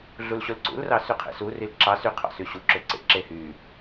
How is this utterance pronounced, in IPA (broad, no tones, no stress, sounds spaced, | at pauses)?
ɮ u l ɕ o l ǀ ṵ l r ɑ s y qʰ ḛ s u r i l ǁ ɑ s y qʰ ɑ̰ s y ɕ u ǁ ø ǀ ḛ ǁ e h y